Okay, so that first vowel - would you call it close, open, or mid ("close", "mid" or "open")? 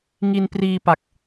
close